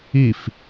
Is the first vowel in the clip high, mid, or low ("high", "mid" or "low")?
high